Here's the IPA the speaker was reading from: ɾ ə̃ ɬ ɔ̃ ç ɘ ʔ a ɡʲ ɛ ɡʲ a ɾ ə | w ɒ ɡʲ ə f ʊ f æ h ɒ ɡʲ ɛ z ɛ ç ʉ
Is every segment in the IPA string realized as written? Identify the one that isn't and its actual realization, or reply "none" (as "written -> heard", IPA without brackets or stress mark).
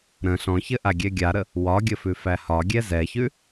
ʊ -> ʉ